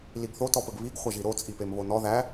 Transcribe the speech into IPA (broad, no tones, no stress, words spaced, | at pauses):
liɡθo tɔpəɡβiɡ χʷɐʒiɾo t͡sʼipemβonɔ ðæ